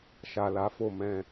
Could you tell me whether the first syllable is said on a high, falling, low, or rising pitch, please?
low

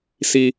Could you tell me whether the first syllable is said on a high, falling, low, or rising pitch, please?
high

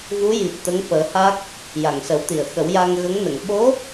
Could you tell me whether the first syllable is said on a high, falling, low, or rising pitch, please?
rising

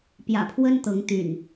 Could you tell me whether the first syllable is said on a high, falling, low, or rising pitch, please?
low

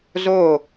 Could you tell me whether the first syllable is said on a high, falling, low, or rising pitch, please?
falling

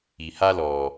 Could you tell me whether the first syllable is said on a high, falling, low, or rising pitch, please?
low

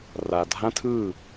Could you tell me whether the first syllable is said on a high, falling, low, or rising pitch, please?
low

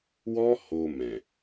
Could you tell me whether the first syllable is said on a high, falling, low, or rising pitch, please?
high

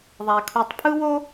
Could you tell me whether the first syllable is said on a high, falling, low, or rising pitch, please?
low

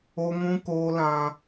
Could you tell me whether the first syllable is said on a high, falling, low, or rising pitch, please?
high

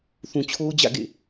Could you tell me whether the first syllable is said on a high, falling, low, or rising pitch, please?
low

